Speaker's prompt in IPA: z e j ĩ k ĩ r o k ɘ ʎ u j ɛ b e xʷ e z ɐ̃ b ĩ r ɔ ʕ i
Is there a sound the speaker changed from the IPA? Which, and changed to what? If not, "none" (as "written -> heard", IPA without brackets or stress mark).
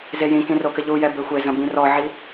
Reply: none